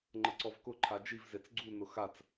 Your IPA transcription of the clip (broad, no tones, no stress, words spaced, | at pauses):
ŋ͡ǃəǀɔvkʊ ǃʰad͡ʒiv zet͡sɡ͡ǀu nʊxat͡s